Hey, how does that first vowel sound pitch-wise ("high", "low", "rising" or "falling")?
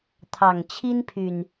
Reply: low